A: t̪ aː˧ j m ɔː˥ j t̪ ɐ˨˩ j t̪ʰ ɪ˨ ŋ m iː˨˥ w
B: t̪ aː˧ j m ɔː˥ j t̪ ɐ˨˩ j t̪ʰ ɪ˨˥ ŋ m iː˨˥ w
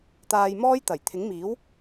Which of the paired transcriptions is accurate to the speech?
B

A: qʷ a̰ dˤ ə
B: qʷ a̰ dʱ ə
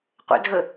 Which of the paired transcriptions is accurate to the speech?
B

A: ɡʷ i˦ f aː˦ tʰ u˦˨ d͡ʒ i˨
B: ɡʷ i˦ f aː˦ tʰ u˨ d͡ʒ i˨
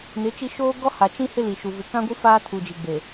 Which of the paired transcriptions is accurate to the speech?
B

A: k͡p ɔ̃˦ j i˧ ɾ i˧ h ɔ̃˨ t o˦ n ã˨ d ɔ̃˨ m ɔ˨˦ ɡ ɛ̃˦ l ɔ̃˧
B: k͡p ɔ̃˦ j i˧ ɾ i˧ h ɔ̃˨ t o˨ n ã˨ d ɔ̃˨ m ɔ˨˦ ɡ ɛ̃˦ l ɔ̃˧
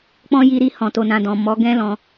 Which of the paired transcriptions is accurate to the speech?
B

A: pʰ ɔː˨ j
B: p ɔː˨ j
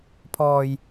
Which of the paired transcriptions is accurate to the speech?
A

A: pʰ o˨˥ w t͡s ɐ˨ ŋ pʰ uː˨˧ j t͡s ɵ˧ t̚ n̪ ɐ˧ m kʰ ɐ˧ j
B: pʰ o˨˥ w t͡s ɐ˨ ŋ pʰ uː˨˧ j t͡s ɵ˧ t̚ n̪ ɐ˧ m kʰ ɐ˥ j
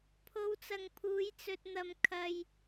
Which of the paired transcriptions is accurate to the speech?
A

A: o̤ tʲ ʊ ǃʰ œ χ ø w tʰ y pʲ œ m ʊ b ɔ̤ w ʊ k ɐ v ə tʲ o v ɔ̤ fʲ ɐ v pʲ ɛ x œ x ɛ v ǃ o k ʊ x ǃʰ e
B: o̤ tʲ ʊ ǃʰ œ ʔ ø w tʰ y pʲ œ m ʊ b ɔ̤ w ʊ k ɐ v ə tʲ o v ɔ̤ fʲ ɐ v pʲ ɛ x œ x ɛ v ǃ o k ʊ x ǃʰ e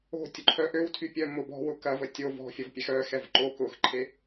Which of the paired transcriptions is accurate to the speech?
B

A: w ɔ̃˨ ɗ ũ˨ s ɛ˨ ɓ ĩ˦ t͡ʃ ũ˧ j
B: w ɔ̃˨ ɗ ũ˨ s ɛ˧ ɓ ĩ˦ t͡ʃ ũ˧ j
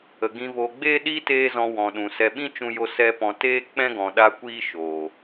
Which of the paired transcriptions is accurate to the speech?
B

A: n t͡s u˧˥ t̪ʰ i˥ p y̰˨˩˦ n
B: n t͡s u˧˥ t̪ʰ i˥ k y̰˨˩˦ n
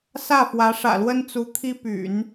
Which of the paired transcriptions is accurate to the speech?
A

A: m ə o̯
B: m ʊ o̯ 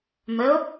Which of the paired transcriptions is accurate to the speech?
A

